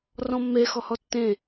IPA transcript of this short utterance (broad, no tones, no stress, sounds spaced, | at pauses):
r ɔ̃ mː e x ɔ h ɔ tː ẽ